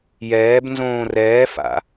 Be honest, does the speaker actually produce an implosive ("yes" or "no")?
no